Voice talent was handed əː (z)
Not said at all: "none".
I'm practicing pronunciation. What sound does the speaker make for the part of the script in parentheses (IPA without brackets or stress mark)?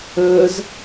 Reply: z